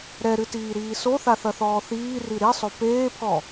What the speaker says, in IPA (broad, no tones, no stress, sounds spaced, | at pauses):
ɾ ɛ ɾ ɨ t iː ɾ iː s o θ a θ ɐ θ ɔː θ iː r i ɾ i sˤ o p eː pʰ ɔ